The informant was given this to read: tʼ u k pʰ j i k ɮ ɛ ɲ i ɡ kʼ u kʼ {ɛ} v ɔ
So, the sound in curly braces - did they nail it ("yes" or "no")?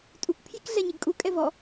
yes